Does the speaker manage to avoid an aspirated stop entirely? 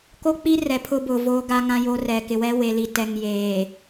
no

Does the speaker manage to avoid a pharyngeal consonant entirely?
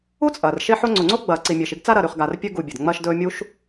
no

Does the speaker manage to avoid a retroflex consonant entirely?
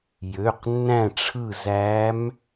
no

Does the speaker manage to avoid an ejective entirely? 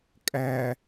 no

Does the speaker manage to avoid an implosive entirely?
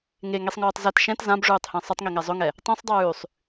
yes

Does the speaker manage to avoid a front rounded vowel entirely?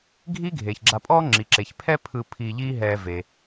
yes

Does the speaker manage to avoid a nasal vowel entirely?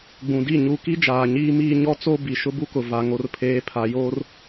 no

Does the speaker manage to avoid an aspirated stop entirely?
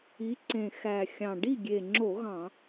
yes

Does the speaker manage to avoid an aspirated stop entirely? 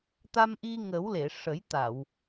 yes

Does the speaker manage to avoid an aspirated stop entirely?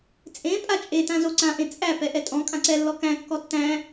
yes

